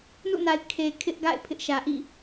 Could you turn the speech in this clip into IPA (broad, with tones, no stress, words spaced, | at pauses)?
nṵ˦˨na˨ɪ̯ kʰe˨kʰɪ˦ʔɡa̰˦˨ɪ̯ pʰɪ˦ʔʃä˨ʔḭ˦˨